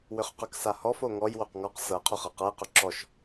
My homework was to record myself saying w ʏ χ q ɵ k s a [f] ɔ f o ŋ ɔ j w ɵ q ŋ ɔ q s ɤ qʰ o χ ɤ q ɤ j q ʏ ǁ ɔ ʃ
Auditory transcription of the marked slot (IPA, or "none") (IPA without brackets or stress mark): h